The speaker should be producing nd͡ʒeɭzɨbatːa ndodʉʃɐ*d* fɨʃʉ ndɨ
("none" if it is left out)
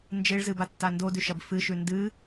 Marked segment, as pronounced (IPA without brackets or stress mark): b